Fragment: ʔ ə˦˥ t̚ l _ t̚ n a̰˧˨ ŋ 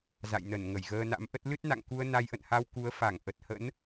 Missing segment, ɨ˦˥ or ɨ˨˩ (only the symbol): ɨ˦˥